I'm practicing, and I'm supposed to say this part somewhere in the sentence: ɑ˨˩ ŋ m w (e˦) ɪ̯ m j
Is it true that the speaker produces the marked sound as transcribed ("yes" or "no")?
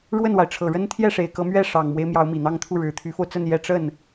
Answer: yes